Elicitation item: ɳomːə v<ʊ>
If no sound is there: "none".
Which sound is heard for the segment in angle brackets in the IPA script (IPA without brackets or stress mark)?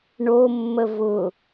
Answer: ʊ